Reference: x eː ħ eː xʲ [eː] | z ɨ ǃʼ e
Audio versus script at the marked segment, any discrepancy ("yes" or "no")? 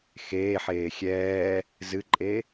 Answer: yes